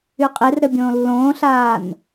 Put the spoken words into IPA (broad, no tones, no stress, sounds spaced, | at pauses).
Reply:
y qʼ e r ɾ ɘ bʲ õː lː õː ɬ aː n